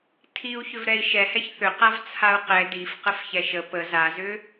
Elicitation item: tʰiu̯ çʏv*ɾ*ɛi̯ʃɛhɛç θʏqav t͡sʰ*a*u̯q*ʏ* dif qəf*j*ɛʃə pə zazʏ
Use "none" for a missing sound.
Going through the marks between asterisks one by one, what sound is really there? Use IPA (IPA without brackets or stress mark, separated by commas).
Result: ɾ, a, ɛ, ç